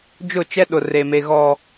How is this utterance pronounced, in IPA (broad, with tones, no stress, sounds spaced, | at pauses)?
d͡ʒ ʊ˦˨ t͡ʃ ɛ˦ ɗ ʊ˨ r e˨ m e˨ ɣ ɔ˨